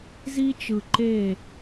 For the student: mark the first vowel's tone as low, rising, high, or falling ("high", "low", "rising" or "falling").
high